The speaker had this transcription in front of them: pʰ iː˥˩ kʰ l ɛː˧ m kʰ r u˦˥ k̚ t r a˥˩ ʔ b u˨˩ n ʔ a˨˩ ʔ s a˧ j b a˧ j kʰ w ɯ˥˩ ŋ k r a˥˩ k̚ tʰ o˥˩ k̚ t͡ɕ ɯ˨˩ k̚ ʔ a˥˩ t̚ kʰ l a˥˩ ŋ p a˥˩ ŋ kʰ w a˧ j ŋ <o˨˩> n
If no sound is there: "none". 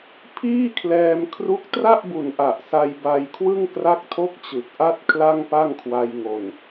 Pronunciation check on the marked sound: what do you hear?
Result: o˨˩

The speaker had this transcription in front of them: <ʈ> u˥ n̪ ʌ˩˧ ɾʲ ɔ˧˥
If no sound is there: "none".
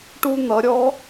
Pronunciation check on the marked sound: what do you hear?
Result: ʈ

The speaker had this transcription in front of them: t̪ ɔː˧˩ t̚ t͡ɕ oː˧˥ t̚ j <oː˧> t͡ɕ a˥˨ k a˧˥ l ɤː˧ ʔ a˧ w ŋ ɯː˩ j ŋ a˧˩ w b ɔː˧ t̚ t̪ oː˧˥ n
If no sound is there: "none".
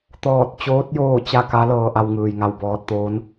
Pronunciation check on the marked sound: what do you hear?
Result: oː˥˨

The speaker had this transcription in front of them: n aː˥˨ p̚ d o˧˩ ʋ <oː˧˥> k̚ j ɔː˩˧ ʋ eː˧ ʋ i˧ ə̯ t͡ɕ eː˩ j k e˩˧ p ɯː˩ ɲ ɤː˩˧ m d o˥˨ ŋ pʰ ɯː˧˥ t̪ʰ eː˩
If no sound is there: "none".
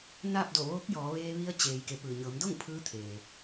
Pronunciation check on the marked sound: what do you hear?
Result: oː˧˥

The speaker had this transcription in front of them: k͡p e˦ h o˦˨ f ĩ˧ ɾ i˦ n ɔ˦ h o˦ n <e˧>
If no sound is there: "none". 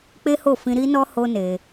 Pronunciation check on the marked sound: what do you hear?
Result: e˧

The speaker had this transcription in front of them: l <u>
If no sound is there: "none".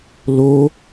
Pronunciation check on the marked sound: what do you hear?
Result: o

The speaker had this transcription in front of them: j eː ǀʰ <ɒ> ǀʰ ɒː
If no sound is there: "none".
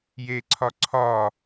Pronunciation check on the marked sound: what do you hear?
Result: ɒ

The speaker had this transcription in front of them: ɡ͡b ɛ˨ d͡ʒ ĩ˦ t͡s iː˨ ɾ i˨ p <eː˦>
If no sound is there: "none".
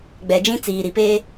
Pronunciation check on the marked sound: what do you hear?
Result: eː˦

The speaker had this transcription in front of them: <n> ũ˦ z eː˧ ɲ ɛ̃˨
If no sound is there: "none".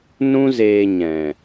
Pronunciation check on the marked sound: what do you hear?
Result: n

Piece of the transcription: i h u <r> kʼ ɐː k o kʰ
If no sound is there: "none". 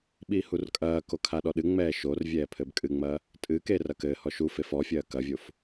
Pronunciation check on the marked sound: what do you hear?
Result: r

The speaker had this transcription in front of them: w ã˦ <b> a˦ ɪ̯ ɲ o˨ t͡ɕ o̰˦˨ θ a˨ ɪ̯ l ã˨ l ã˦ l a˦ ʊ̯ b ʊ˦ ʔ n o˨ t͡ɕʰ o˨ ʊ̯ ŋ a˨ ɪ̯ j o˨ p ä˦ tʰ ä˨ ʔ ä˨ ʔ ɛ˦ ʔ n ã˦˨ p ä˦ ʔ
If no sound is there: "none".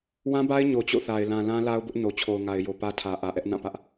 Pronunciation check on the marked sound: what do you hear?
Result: b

